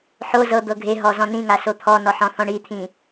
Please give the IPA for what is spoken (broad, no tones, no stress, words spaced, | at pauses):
ħo zɤ d̪ɤɡʱeɦɔ zɔ̃nĩŋa sot̪ʰɔnɔ ħɔ̃θɔ̃ɳit̪ʰĩ